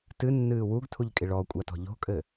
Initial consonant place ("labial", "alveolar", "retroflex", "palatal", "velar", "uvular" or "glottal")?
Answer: alveolar